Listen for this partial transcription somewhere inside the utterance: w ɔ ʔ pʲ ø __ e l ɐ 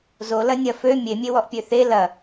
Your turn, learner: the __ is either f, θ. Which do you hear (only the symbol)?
θ